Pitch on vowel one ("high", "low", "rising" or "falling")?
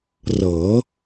rising